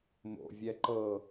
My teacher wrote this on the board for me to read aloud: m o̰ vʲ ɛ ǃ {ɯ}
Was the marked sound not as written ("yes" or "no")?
yes